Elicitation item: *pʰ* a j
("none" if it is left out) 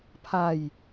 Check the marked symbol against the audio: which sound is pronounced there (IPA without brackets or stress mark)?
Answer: pʰ